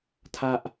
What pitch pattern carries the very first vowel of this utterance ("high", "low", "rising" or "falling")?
high